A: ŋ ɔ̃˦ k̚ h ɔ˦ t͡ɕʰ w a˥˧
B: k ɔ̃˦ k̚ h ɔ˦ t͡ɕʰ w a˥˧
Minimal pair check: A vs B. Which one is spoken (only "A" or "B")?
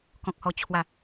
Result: B